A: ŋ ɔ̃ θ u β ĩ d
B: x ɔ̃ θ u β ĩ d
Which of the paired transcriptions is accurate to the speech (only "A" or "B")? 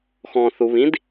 B